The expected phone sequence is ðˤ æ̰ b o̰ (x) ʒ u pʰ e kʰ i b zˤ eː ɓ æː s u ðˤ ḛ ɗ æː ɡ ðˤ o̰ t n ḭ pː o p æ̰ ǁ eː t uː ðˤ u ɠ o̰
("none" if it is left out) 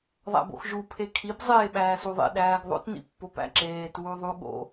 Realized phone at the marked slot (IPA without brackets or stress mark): x